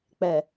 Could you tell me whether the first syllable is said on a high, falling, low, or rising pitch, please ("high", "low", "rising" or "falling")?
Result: low